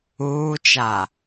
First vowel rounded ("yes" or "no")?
yes